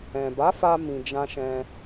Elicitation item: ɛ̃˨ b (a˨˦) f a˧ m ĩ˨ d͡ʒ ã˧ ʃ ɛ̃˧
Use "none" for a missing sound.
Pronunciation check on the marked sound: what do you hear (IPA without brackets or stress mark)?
a˨˦